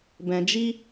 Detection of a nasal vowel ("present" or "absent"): present